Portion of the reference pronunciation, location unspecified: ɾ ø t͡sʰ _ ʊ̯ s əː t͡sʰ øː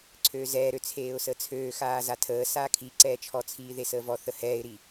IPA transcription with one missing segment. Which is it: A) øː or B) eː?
B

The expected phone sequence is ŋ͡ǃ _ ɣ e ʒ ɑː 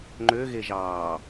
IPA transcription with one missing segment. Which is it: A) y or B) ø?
B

